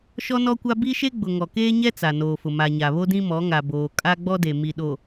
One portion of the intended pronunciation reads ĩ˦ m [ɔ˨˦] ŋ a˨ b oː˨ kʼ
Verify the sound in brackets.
correct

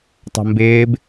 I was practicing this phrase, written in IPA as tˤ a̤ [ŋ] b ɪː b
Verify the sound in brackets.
incorrect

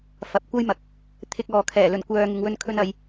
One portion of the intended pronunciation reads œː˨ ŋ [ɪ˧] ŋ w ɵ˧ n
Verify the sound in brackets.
incorrect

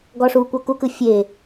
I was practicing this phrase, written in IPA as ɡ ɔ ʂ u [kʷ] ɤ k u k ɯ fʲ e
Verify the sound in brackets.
correct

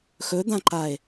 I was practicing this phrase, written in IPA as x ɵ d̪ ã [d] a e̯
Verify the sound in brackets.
incorrect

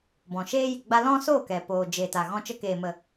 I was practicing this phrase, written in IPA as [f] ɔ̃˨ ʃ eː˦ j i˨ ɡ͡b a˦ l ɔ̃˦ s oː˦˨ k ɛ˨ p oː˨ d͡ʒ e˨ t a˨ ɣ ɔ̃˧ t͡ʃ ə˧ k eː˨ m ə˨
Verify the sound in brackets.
incorrect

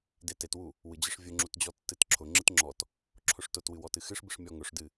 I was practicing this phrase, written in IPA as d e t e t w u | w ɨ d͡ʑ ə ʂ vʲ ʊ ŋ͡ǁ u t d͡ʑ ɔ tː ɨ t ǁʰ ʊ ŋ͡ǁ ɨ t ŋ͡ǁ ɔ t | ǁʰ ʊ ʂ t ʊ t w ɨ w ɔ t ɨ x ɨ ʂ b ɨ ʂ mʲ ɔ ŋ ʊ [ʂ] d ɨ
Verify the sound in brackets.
correct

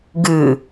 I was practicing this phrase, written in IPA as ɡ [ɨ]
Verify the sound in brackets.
correct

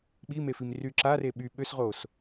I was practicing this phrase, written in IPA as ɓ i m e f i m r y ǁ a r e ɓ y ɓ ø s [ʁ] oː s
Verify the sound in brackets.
correct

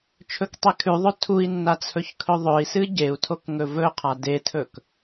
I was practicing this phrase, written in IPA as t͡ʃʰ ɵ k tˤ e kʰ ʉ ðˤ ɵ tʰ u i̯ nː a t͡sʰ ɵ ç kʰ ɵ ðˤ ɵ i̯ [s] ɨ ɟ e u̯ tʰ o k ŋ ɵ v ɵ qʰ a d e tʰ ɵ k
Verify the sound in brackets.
correct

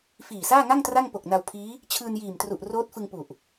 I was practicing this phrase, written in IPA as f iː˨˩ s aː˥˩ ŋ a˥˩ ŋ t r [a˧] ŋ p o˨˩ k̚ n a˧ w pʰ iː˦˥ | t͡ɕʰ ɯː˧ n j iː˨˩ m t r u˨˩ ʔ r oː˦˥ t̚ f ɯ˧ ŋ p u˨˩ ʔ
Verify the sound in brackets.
incorrect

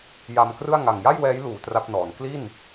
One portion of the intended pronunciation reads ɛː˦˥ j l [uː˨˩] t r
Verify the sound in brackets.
incorrect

